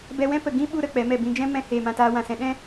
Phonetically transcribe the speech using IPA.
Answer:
bɛ˧wɛ̃˦ pə˨ ɡĩ˦ ɓu˧ ɾə˧k͡pɛ˨˦mɛ˦˨ bĩ˧d͡ʒɛ̃˦ mɛ̃˧ heː˧mã˧taː˦ wã˨sɛ̃˧ ɗɛ̃˦

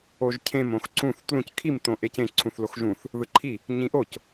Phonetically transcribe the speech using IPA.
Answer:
oʒcʰẽm õxǀũθ tlũc kʰim tõʔecẽ ǀʰũθloxʒũθ | ðɯǃʰi | ɲĩʔoc

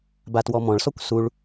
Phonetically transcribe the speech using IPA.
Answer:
batwɔmɔ̃ɭsɔkʷ suɭ

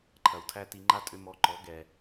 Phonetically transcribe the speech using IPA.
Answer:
ǃʰɐ˨wtʰæ˦ti˧ ŋ͡ǃa˦tʼʏ˧mɔ˨˦ ǃɔ˨˦ɡɛ˨

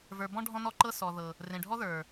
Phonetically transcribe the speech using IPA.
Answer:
və˞˨bɔ̃˦ ɖʱɔ̃˧nɔ˧ ǃɤ˧ sɔ˨ðɤ˨ | rẽ˨ɖʱɔ˦ðə˞˨

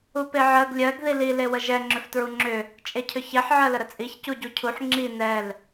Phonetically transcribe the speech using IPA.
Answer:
upeʕɜɡ lʲɜɡ ðili lewəʒɛ ŋ͡ǁʏftɹuŋ͡ǁʏ | t͡ʃʼecʰʏçɛħ ʕɜləɾət͡sʼiç cuɟucʰuħ ŋ͡ǁi nɛl

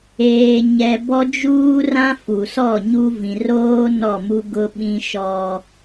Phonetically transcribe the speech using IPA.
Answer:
eː˨ɲɛ˨ bɔ˦d͡ʒuː˦rã˦ fu˨sɔ˦˨ɲu˦ vĩ˨roː˦ nɔ˦˨mu˦ ɡʊ˦ɓĩ˦ ʃɔ˦

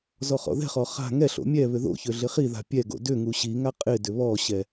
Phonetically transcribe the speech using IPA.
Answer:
zɔχɔ̰ðɛ̤χɔ χa̤ ŋɛɬo̰ mʲɛ βʏðo̰çø ɮɪχiða̤ pʲɛɡo̰ dʏŋu ɕiŋa qʼɪdʏ βɔɕɛ

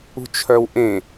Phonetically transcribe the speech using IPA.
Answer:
ṳt͡ʃʰœwʔẽ

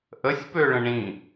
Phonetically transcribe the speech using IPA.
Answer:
ʔəsʲpøɭə̃ ɳĩ

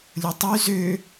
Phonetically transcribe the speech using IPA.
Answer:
lʲotˤy zø

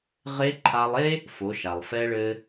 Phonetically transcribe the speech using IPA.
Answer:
ʁe˧˥ ǃʰa˧lˠe˥ | fo˩˧ʃa˩lˠ fɛ˧ɭɘ˧

